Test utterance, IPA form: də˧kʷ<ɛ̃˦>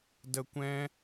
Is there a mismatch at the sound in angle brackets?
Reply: no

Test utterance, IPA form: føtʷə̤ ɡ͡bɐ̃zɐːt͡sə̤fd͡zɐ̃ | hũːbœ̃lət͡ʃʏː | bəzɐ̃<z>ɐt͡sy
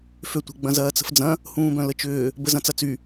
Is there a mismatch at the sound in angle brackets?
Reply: yes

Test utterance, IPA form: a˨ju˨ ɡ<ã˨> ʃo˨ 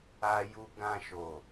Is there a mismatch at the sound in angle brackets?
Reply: no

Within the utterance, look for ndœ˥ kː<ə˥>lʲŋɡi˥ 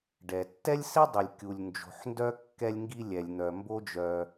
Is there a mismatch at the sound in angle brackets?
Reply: yes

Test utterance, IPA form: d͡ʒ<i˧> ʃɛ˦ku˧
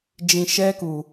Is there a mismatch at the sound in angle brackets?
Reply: yes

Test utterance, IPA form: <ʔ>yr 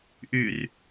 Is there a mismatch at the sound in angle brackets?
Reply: no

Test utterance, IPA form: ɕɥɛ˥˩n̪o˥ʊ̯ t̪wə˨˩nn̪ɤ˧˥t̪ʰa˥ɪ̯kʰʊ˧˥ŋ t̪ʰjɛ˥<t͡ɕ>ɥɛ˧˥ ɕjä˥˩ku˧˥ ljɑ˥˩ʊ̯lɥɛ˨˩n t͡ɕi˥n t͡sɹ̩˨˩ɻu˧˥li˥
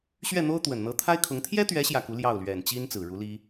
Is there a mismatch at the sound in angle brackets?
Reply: yes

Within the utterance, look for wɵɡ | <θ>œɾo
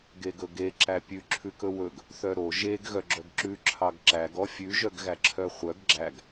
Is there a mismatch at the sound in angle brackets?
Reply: no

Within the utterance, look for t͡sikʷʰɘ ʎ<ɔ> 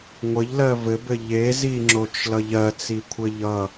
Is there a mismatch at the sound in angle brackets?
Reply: yes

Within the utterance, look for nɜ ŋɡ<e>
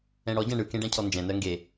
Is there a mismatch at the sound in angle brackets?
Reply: no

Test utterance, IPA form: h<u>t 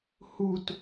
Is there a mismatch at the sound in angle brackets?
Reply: no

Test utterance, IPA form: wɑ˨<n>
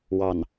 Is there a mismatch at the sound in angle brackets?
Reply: no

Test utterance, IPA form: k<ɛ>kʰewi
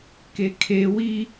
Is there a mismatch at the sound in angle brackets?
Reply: yes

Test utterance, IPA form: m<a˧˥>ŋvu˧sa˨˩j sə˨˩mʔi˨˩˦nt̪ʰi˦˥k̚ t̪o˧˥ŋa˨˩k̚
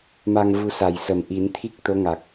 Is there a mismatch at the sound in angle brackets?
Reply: yes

